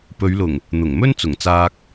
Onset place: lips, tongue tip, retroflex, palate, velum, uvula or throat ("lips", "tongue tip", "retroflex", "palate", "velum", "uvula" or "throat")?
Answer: lips